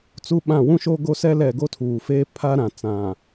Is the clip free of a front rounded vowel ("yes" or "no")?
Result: yes